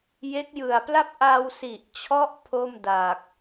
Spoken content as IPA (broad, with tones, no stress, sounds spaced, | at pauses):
j e˦˥ k̚ j ɯ˨˩ a̯ p l a˥˩ p̚ ʔ a˧ w s i˨˩ ʔ t͡ɕʰ ɔ˦˥ ʔ pʰ o˥˩ m d a˨˩ k̚